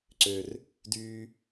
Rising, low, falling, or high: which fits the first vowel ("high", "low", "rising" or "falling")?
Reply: low